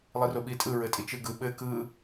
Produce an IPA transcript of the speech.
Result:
lˠ i r o ɓ i tʼ ɯ ɹ ɘ tʼ i t͡ʃ ɯ ɡ ɯ ɓ ɘ k ɯ

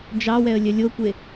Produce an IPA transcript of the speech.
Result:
d͡ʒ ɑ w ɛ ə̯ lʲ œ lʲ o kʷ e

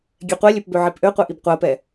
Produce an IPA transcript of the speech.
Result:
ɡʲ ɛ qʷ ɛ lʲ ø p b ø ʕ i p ʔ ø qʷ ɛ ʔ i b qʷ ɜ p ɛ

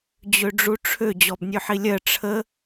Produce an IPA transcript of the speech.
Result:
d͡ʑ ø ɖ͡ʐ u ʈ͡ʂʰ ø d͡ʑ ɔ b nʲ ø ħ i lʲ ɜ ʈ͡ʂʰ ə

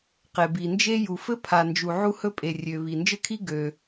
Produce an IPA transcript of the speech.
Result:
q e˩ b i˩ n d͡ʒ e˥ j u˩ f ɘ˥ pʰ a˩ n d͡ʒ u˩ ʕ u˥ h ɵ˥ pʼ e˩ rʲ ø˩ β i˩ n d͡ʒ ɘ˥ kʰ i˥ ɡ ø˩

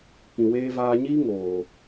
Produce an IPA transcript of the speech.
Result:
k ĩ˨ w eː˧ v aː˧ ɲ iː˦ ŋ oː˨

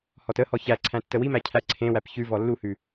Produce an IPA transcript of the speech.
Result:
h ɔ t ə h ɔ ç æ ǀʰ æ̃ tː ə w i m æ cʰ æ ǀʰ ẽ w æ p ç ʉ v ɔ lː u h ʉ

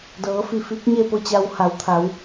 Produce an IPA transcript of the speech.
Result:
d ɤː˩˧ f i˧˩ f i˧˥ k̚ ɲ e˥˨ p o˥˨ t͡ɕ a˧ w h a˩˧ w t̪ʰ a˩˧ w

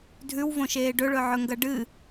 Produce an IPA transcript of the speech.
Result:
dʱ ʉ w v õ ʃ eː ɖ ɵ ɭ ɵ ʕ ɵ ŋ ɡ ɐ ɖ ɨ

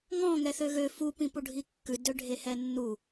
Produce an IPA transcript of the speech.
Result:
ŋ ɔ̃ ŋ ɛ θ ø ɣ ø f u p ĩ p u ɖʱ i kː ʉ d ø ɖʱ e h ɛ nː u

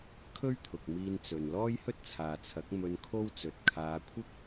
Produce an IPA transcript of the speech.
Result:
kʰ ɵ˥ ɥ t̪ʰ ʊ˨ k̚ m iː˧ n t͡s ɵ˨ n l ɔː˥ j h ɵ˥ t̚ t͡sʰ aː˨ t͡sʰ ɐ˨˥ k̚ m ɵ˧ n kʰ o˥ w t͡s ɵ˨ t̚ kʰ aː˨˧ kʷʰ ɪ˥ k̚

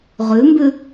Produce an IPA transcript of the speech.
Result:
ʁ ʉ m b ʉ

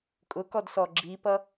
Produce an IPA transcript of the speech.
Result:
kʼ ʊ k ɔ d s ɔ ɡ͡ǁ i p ʌ

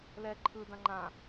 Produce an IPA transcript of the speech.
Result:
l ɛ ǃʰ ɯ d ã ŋ͡ǃ ã

